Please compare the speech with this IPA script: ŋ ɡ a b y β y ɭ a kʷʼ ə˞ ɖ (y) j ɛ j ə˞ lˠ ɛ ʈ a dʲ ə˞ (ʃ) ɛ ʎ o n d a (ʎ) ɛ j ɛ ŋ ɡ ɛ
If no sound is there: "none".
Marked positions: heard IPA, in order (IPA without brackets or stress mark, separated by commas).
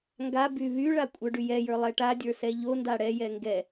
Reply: y, s, ɽ